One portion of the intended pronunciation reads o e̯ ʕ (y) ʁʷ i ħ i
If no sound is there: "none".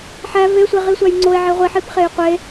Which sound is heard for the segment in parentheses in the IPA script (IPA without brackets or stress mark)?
e